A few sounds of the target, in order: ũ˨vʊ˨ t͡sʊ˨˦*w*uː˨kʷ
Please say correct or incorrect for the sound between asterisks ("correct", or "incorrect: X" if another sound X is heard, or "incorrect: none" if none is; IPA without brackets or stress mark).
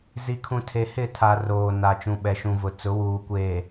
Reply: correct